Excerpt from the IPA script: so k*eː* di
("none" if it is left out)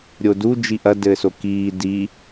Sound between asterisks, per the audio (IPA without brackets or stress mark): iː